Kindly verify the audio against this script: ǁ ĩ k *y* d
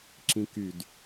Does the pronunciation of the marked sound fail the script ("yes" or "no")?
no